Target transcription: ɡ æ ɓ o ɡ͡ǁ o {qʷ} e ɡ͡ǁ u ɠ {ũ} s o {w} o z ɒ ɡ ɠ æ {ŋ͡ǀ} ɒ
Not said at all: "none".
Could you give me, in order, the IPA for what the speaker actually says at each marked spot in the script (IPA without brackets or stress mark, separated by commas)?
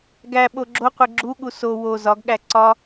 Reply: qʷ, u, w, ǀ